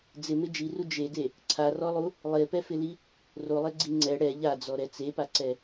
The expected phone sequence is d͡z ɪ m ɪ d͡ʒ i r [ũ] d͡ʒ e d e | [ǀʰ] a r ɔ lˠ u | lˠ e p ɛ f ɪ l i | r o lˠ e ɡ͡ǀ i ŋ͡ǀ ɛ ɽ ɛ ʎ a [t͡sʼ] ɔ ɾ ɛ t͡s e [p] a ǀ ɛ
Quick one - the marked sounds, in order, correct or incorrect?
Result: incorrect, correct, incorrect, correct

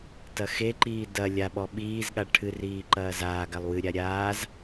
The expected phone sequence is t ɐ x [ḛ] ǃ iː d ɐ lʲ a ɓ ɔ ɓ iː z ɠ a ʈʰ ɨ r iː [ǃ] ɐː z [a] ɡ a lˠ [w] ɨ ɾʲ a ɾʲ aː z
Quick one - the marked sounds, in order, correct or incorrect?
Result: incorrect, correct, incorrect, correct

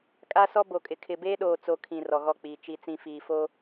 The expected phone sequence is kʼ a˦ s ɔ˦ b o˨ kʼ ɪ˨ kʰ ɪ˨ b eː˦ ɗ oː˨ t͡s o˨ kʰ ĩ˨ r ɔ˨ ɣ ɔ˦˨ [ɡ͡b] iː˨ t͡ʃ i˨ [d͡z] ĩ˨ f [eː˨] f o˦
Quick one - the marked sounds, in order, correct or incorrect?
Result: incorrect, incorrect, incorrect

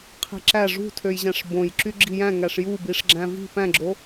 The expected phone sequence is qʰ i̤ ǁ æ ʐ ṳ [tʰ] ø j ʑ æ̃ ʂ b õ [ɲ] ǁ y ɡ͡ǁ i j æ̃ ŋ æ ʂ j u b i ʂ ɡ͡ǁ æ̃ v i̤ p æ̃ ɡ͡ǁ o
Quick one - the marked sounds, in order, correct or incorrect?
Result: correct, incorrect

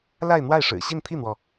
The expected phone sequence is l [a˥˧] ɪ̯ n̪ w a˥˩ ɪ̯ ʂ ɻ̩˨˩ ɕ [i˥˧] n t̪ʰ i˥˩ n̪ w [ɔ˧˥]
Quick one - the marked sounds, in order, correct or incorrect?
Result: correct, correct, incorrect

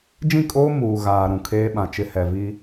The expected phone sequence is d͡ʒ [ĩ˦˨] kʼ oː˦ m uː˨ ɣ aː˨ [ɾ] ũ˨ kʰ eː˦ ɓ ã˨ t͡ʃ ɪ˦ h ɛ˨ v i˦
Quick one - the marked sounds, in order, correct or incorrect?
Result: correct, correct

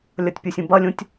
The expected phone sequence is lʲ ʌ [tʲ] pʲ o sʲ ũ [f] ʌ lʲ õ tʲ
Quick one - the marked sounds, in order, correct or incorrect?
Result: correct, incorrect

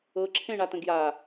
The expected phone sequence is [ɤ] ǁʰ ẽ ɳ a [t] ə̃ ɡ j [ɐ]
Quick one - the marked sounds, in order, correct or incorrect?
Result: correct, correct, incorrect

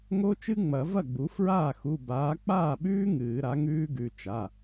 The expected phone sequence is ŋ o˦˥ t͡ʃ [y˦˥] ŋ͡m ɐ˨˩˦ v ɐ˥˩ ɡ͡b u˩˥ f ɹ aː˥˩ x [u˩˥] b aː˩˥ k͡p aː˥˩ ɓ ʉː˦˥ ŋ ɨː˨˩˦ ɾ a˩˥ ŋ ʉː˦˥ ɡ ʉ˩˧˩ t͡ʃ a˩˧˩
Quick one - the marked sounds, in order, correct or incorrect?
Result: incorrect, incorrect

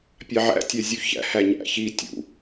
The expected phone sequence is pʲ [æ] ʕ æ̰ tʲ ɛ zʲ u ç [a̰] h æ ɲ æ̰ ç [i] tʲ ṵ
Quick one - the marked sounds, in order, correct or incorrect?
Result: incorrect, incorrect, correct

